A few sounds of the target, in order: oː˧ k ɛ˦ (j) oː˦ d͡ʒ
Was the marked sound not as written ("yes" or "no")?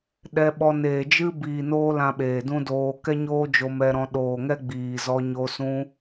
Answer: yes